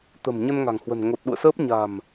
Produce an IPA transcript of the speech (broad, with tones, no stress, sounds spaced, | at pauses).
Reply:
t̪ ə̤˨˩ m ɲ ə˧ n ŋ a̤˨˩ ŋ h w ə̤˨˩ n ŋ o˨˩ t̚ ɗ ṵ˧˨ ə̯ s əː˦˥ p̚ ɲ a̤˨˩ m